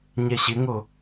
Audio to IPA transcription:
ɲ ɛ ɕ ɪ ŋ o

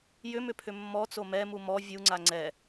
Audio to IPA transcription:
j ʏ m ʏ pʰ ʏ mː ɔ t͡s o m ɛ m u m ɔ vʲ u ŋ͡ǀ a ŋ͡ǀ ɛ

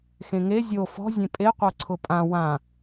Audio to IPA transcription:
x ẽ ŋ e zʲ o f ɔ̤ zʲ ẽ pʼ e qʷ a ǀʰ ʊ pʼ ã w ã

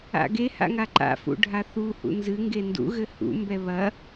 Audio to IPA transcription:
a̰ ɡ e h a̰ ŋ a ǃ a̰ f ṵ ɖʱ a θ u h ṵ n z ɨ ŋ ɡ e n d ṵ ɣ ɘ h ṵ m b ɛ β ɐ

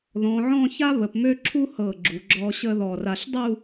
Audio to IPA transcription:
ð ɔ̃˩˧ ʕ ɔ̃˥˧ ç a˥ β ə˩˧ p m ø˥˧ ǁʰ u˥ h ɤ˧˩ ɡ͡ǁ u˩˧ ɡ͡ǁ ɔ˧ ɕ ə˥˧ ð ɔ˧˩ r a˧ ɬ dˤ u˥˧

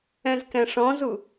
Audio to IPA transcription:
ɛ̃ z k ɛ̃ ʂ ɔ̃ z u

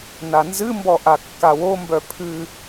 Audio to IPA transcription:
n a n z ɨ m b ɔ ʔ a kː a w o m b œ pʰ ɨ

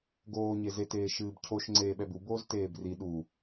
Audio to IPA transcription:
ɡ oː ɲ e z e t eː ʃ ɨː b cʰ o ʃ ŋ͡ǀ eː ɓ ɛ b u b oː z t eː b r i ɗ u

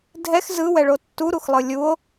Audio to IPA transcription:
dʱ ɛ x z ɯ w ɛ ɭ o tː u ɾ u x lˠ ɯ lʲ u o̯

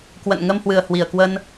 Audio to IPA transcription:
k w ə̰˧˨ n ŋ ə˧ m h w ɨ˨˩ ə̯ h w i˧˩ ə̯ k w ə˧ n

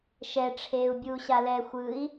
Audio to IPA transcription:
ʃ ɛ ʈ͡ʂʰ eː u̯ bʲ uː ɕ a l ɛ xʷ ɯ i̯

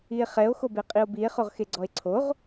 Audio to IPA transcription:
i e̯ χ ɛ o̯ x o b e qʼ i o̯ b i e̯ χ o ʁ x e ɡ͡ǀ ɔ e̯ ǀʰ o ʁ

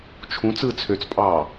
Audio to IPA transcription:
t͡ʃʰ ũ t͡s ɯː t͡sʰ ø t͡s pʼ ɑː

